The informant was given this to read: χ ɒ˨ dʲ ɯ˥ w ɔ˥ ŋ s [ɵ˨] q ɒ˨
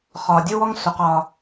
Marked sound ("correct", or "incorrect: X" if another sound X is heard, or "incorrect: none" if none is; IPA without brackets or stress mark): incorrect: o˨